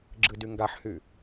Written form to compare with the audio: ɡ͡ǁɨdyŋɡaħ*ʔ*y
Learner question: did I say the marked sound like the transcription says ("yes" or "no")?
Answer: no